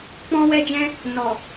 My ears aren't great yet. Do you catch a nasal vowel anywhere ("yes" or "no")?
yes